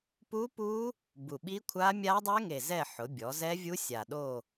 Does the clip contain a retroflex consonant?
no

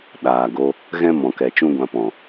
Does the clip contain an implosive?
yes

